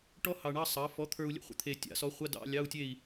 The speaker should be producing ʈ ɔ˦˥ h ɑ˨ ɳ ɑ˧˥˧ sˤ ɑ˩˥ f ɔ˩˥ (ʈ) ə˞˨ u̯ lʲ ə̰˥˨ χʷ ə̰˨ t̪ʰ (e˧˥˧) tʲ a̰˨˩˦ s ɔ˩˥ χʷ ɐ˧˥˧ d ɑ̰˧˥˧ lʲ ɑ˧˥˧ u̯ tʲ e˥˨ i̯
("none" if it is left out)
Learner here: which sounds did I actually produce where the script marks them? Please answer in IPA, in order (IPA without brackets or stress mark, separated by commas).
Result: t̪ʰ, e˨